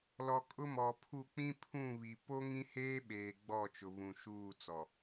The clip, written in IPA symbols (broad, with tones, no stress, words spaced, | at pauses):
lɔ˨ kʼʊ˦mɔ˨pʰu˦˨ k͡pĩ˦pʰũ˦˨βi˨ po˦ ŋĩ˦heː˦ɓeː˨ ɡ͡bɔ˦˨ t͡ʃʊ˨βũ˨ʃuː˦˨t͡sɔ˨